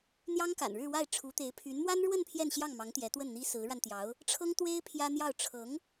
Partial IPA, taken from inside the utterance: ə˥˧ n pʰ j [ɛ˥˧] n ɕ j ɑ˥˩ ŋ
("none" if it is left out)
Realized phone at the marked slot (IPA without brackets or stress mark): ɛ˥˧